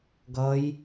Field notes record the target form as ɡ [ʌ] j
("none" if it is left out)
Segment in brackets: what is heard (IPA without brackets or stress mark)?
ʌ